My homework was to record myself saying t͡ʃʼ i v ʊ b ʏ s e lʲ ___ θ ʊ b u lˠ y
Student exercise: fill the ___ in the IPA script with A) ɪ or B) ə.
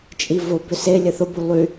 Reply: B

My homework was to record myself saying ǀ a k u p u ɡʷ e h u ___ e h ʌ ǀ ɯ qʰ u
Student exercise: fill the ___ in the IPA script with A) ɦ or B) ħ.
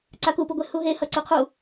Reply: A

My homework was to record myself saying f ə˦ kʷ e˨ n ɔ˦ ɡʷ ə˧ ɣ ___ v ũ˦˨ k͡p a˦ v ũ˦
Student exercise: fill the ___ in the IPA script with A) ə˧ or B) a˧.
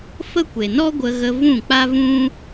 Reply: A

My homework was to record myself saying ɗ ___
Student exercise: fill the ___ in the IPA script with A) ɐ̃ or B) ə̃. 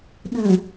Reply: B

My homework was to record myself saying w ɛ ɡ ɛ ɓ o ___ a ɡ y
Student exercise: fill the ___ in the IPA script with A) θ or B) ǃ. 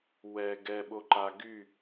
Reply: B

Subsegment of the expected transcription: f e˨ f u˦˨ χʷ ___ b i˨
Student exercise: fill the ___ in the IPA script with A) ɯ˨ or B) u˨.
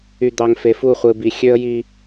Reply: A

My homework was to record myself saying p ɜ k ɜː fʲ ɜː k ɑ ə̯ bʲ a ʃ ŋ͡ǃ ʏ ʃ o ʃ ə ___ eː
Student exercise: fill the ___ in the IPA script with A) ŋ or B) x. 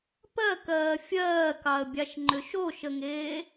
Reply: A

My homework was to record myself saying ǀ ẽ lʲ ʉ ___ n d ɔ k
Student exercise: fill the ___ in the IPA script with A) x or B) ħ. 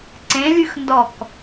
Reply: A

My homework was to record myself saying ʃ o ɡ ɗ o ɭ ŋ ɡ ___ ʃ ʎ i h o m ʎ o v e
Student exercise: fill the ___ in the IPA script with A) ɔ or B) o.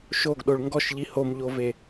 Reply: A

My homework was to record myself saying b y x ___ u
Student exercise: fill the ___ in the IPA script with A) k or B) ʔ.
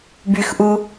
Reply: B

